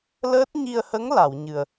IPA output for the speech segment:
l əː˦˥ t̚ ɲ i˧ ə̯ h ə˧˥ ŋ l a˨˩˨ w ɲ ɨ˨˩ ə̯

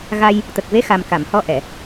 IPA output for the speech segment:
ɣ a˧ j | t̪ ə˨˩ k̚ v e˧˥ x a˨˩ m k a˨˩˨ m h ɔ˧˥ ʔ ɛ˨˩˨

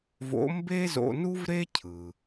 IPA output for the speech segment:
v o̰˧˥ m b e˥ z o̰˧ n u˥ v ɾ e˥ cʰ ɯ˩

